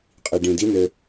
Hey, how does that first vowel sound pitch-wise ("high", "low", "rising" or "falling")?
low